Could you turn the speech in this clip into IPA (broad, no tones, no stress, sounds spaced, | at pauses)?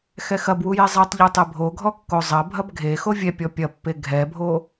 x ɛ x ɐ b w u j e zˤ ɛ tˤ ʎ u tˤ e bʱ o ɡʱ ɔ kː o zˤ ɐ bʱ ɐ b ɡʱ e x o vʲ ɛ pʲ ɔ pʲ ɐ pː e ɡʱ ɛ bʱ o